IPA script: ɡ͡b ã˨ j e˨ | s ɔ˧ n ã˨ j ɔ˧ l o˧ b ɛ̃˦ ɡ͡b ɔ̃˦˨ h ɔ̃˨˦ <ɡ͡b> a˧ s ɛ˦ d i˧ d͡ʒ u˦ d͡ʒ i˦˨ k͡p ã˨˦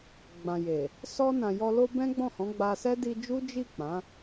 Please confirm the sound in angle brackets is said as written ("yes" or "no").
yes